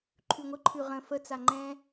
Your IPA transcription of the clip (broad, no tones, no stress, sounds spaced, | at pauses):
ǃʰ ʉ ŋʷ ə ǃʰ ʉ ʁ ə̃ f ə t͡s a ŋ͡ǃ ɛ̃